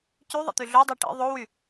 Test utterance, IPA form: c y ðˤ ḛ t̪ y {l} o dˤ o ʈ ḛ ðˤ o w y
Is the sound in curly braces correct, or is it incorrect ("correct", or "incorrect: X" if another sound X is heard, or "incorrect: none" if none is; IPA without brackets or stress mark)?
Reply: incorrect: ɮ